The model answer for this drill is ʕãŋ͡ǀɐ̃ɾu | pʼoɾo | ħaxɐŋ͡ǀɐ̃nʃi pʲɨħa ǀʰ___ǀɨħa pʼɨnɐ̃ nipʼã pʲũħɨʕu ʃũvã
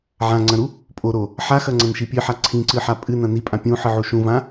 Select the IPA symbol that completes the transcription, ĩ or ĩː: ĩ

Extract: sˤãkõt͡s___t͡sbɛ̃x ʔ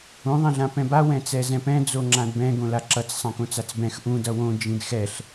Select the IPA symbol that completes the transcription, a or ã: a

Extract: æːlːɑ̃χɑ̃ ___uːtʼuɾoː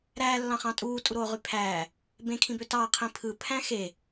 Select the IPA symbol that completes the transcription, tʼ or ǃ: tʼ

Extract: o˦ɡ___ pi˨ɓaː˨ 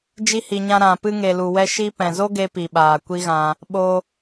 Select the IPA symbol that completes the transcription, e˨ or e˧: e˧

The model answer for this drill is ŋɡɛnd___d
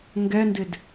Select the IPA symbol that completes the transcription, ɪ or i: ɪ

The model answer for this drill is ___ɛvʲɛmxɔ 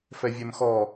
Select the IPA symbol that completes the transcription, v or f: f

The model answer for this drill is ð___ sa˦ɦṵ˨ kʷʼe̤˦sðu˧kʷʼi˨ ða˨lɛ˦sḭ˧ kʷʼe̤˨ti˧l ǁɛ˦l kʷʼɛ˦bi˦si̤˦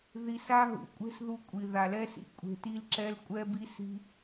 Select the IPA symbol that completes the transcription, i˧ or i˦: i˧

